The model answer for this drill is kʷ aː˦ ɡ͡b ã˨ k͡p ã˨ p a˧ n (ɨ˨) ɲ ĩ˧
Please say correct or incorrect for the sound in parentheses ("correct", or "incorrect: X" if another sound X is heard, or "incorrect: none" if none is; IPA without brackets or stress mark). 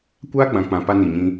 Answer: incorrect: i˨